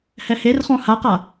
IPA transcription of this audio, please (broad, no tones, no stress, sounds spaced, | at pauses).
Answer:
h ɛ h e r χ ɔ̃ h a q a